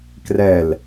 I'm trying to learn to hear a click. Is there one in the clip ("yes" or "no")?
no